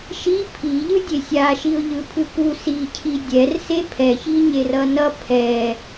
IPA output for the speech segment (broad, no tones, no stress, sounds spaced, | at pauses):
ʃ i pʰ i ʎ ɯ dʲ e sʲ a ʃ i ʊ̯ ʎ ɯ pʰ ɯ k u s i cʰ i dʲ ɛ r s e pʰ ɛ ç i ɲ e r ʌ n ʌ pʰ ɛ